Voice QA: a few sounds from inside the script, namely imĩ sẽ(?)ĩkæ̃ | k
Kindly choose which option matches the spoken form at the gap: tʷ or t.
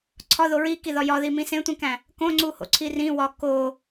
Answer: tʷ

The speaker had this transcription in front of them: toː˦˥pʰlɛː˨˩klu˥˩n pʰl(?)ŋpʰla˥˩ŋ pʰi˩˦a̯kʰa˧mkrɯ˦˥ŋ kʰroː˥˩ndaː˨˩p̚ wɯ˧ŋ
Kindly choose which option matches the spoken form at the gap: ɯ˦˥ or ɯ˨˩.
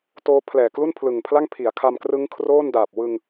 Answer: ɯ˨˩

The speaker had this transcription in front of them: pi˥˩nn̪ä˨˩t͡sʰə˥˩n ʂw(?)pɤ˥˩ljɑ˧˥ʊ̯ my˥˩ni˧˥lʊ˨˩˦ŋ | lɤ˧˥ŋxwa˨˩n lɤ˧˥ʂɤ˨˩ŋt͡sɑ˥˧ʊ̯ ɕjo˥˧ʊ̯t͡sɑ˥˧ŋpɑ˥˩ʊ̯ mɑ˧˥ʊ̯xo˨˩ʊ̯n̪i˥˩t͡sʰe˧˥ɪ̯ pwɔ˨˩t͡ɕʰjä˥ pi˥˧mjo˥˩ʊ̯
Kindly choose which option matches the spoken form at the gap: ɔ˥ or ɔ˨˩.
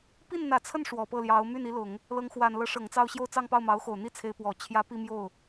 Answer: ɔ˨˩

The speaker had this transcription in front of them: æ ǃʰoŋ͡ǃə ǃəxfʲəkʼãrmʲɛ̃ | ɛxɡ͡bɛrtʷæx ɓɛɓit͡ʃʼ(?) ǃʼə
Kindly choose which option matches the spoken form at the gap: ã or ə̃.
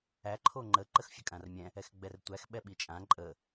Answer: ã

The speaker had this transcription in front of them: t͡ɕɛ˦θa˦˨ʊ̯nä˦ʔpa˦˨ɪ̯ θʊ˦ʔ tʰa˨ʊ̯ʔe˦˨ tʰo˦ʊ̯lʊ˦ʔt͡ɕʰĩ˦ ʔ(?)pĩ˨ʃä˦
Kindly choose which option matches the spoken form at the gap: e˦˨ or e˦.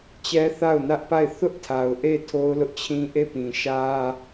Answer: e˦˨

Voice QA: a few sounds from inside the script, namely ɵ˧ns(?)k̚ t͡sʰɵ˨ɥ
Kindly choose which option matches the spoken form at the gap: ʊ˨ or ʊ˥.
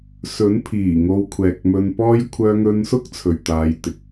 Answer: ʊ˥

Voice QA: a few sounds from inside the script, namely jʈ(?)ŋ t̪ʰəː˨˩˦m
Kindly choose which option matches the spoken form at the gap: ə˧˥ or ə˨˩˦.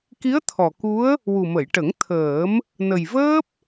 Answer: ə˨˩˦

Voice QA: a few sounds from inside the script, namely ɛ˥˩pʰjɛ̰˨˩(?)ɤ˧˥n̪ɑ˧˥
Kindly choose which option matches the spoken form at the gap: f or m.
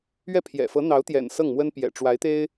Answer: f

